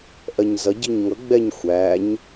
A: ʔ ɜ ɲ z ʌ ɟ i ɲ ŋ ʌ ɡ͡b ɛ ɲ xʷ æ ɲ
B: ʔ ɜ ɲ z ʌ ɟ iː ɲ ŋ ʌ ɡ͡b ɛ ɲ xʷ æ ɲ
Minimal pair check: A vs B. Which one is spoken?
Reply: A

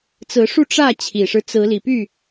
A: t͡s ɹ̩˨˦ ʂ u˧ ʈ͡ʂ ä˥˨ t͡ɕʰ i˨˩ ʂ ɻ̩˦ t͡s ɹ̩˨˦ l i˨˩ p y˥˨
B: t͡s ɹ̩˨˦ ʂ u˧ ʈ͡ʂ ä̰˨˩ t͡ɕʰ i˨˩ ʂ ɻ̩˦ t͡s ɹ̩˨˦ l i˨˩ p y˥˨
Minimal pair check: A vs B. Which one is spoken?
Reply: A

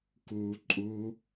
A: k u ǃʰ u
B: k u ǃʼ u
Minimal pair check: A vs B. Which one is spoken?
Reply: B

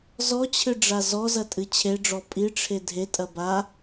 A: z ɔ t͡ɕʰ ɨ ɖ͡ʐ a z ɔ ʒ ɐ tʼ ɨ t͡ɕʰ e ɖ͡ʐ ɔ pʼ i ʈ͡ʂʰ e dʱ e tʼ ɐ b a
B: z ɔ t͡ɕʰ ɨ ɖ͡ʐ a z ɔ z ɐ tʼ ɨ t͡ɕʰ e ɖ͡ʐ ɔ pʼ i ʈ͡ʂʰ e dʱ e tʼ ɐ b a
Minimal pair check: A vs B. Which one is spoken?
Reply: B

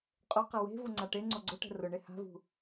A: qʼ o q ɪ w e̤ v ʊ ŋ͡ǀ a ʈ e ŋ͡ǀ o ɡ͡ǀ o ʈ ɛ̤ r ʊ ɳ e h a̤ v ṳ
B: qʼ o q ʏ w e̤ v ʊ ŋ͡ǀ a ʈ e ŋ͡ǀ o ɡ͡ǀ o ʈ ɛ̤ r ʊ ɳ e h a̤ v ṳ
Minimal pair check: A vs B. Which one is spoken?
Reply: A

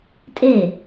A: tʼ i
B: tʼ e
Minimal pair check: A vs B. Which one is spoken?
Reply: B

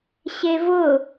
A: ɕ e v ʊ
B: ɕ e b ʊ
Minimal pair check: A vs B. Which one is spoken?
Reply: A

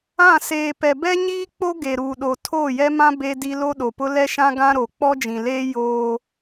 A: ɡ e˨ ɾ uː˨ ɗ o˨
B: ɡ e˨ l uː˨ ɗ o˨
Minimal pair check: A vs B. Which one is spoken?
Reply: A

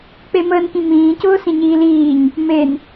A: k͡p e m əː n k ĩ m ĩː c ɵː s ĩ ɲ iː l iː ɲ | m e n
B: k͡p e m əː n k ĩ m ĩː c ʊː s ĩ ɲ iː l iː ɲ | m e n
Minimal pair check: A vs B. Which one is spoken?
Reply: B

